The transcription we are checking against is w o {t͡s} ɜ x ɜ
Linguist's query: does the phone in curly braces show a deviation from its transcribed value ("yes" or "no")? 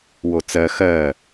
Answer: no